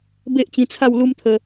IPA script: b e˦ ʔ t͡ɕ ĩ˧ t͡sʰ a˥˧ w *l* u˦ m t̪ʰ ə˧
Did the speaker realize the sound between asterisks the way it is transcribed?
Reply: yes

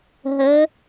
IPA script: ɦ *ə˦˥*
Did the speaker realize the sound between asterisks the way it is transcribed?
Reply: no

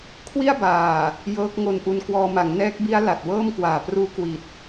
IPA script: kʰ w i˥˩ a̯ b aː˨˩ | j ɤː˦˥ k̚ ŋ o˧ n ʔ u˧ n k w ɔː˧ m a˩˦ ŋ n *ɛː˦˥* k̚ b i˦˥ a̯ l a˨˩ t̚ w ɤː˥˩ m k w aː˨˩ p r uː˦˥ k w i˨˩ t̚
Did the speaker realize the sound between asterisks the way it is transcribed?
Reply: yes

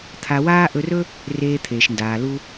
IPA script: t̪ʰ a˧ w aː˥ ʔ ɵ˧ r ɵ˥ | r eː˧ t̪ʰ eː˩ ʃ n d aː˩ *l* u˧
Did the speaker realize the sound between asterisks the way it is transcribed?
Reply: yes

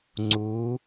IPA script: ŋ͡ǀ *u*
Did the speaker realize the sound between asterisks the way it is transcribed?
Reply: no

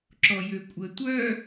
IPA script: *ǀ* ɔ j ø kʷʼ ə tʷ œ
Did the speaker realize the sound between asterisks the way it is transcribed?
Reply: no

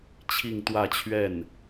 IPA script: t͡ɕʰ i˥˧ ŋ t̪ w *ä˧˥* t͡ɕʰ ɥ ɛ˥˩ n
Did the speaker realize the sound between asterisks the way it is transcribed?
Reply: no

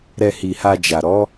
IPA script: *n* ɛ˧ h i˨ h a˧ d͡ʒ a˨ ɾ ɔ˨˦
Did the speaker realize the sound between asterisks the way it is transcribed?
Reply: no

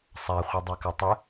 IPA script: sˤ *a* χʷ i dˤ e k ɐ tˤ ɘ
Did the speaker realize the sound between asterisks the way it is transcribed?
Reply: yes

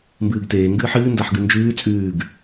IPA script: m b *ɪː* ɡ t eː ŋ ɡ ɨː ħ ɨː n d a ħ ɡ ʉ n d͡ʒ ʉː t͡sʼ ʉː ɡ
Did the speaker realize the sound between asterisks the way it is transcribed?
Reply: no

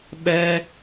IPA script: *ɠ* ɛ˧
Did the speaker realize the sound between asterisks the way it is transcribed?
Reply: no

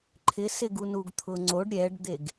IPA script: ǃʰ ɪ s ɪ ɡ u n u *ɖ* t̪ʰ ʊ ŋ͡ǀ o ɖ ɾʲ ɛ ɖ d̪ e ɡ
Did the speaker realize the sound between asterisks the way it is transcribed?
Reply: no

